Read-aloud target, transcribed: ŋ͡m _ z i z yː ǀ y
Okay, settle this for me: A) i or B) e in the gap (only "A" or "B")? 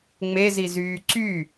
B